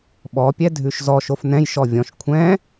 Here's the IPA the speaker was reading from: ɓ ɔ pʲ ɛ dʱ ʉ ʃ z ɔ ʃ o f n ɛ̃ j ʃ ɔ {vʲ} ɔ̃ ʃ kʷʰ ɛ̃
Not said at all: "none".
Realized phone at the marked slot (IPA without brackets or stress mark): vʲ